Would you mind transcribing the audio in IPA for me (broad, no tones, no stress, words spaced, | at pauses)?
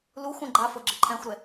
luxʷ ə̃ ɡ͡ǃa fɤɡ͡ǁɘǃʰɛ̃xʷɾɛ